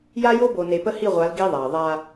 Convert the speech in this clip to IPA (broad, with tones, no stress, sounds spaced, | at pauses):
j a˦ j o˦ b o˨ n e˨ p ə˦ h i˦˨ ʁʷ a˨˦ l ɡ i˦ ðˤ a˨ ə̯ ðˤ a˦